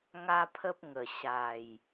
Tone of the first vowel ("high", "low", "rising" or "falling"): high